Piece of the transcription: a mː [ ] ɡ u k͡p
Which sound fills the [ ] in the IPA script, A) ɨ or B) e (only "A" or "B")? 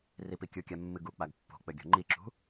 A